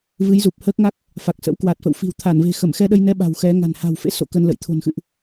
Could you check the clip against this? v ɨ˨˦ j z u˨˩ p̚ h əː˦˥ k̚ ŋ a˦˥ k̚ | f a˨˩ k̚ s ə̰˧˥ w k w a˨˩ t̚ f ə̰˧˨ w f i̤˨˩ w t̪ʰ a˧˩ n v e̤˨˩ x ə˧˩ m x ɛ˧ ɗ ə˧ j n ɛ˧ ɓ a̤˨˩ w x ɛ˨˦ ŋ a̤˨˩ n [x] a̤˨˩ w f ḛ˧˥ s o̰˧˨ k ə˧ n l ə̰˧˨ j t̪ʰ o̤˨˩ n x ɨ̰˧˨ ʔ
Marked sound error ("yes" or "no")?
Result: yes